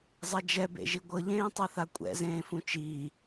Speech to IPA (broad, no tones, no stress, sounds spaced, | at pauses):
zˤ ɛ d͡ʒ ɛ b ḛ ʒ i ɡʷ ɤ ʎ ẽː tˤ a θ a kʷʼ ɛ̰ z ẽː f ũ t͡ʃ iː